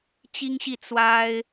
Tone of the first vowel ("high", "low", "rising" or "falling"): high